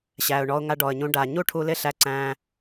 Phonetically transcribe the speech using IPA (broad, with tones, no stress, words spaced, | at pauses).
ɕæ˩ʊ̯ɳɔ˧ʊ̯ŋa˧ ɖɔ˩ə̯ɲũ˧ ɖa˩ɲu˥ʈʰu˧ lɪ˥ɬæ˧ǀæ̃ː˧